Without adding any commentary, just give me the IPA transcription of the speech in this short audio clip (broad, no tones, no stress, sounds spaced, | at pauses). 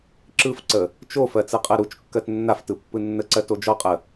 ǁ ɯ f ǀ ə | t͡ʃ o f ɜ t͡s ɯ qʼ ɜ ɾ u t͡ʃ kː ɜ t nː a f t ɯ pː ɯ nː ə ǀ ɜ t o d͡ʒ ɔ qʼ ə